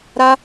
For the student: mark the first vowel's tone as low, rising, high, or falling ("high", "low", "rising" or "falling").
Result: high